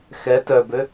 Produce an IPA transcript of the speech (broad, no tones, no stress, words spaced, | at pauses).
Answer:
xɛ tœbø